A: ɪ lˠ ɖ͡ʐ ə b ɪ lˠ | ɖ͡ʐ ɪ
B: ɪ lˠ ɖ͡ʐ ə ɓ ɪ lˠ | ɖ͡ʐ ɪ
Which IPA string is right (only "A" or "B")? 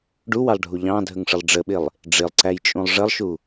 B